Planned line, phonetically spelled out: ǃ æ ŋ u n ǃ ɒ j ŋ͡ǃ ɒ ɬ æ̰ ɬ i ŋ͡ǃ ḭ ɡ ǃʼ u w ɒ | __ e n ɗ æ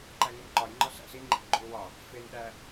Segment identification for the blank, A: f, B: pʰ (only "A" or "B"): A